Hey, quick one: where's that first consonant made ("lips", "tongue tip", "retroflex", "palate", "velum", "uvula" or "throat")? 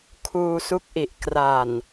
velum